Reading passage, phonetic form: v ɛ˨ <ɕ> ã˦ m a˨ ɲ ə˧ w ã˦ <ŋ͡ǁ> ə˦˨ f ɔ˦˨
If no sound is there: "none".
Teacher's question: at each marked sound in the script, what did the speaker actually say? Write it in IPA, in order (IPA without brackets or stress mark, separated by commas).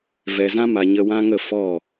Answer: z, ŋ